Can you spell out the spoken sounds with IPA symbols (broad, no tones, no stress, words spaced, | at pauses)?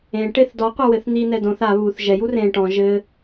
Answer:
ẽʈeθ dɔqʷɘ wɘθn̪inɛ dõθ a βuθ ʒɛju rẽ ʈɔ̃ ʒɘ